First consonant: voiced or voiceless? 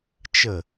voiceless